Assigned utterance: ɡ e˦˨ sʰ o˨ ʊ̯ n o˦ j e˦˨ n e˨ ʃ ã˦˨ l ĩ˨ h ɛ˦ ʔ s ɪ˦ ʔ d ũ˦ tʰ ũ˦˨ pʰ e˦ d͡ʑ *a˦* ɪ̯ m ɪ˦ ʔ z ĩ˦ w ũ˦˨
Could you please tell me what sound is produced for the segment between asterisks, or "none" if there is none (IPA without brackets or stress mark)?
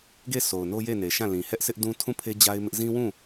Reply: a˦